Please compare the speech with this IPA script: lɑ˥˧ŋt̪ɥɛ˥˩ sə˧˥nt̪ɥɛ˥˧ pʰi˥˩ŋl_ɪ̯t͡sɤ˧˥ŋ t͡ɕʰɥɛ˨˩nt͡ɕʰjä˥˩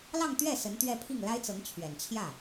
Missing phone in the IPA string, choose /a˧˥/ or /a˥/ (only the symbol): a˥